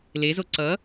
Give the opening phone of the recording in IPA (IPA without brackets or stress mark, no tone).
l